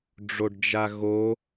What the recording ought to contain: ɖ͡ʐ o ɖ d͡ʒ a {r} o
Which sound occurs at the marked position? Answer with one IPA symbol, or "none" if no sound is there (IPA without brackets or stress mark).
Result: ɣ